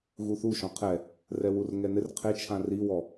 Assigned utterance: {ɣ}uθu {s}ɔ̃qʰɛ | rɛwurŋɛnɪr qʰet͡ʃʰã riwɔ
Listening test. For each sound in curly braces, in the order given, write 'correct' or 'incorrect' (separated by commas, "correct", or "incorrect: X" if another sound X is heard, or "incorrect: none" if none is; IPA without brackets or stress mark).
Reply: correct, incorrect: ʃ